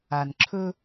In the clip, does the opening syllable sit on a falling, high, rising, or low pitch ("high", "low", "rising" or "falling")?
low